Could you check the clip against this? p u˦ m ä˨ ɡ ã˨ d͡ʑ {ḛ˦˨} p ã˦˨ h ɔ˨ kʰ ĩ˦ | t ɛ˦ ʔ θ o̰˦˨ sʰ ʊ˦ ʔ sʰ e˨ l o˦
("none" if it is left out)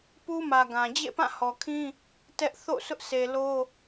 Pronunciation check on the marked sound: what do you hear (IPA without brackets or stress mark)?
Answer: ḛ˦˨